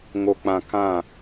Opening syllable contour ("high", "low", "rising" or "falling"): low